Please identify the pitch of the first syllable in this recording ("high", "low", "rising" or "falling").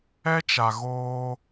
high